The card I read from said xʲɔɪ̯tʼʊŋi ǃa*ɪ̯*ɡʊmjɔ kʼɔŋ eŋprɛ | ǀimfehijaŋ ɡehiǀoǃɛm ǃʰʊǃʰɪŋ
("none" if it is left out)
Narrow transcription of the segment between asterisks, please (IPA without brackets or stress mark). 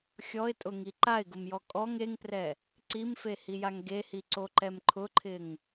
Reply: ɪ̯